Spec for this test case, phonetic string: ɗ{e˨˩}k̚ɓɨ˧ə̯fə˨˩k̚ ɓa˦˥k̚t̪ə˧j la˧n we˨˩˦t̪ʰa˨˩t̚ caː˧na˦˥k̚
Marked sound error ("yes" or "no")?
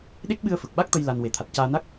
yes